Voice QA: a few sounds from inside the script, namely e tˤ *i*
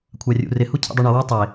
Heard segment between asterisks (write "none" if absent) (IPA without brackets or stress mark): e